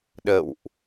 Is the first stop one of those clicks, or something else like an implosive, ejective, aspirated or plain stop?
implosive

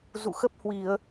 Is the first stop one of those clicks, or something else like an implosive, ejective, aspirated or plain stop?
plain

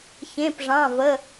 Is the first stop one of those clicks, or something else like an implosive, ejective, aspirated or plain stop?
plain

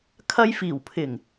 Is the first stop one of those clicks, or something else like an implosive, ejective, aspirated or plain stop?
aspirated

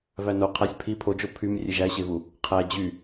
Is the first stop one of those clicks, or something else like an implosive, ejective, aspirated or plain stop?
aspirated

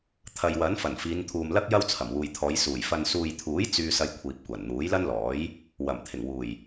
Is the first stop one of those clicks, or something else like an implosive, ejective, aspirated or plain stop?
aspirated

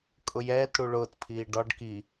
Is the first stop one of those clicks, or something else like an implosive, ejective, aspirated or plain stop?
ejective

